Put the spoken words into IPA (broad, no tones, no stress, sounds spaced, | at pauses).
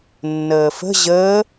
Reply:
nː əː f ə̤ ʑ əː